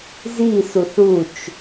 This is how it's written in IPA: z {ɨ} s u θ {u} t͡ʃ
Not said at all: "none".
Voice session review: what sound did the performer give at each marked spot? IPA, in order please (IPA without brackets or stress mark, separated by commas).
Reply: i, u